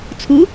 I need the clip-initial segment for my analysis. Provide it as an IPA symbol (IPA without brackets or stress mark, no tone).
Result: t͡sʰ